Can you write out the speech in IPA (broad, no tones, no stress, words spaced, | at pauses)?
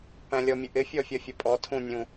pæ̃lʲɔmʲəʔɪ fʲɔfʲʌfʲəpʼɔ tʰũnʲũ